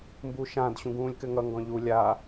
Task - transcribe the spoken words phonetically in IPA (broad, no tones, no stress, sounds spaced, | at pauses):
m b u ʃ ã d ɕ ũ ɡ ũː lʲ k ɘ ŋ ʌ ŋ ɡ ɔ̃ ʎ u lʲ a